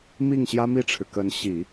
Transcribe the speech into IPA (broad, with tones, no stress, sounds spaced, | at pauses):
m i˥˩ ŋ ɕ j ä˥ m i˥˩ ʈ͡ʂʰ ɻ̩˩ k ə˧˥ n ɕ i˨˩˦